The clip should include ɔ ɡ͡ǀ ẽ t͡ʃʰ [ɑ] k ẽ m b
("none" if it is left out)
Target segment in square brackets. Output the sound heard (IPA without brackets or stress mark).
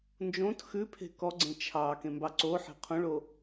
ɑ